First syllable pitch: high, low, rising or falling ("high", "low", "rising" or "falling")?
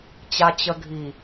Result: low